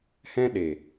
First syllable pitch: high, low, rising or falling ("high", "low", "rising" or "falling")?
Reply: high